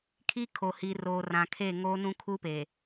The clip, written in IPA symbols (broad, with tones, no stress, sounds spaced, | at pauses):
kʰ i˦ kʰ o˨ h i˨ r o˨ r ã˨ kʰ e˦˨ ŋ o˦ n ũ˦ kʰ u˦ p e˨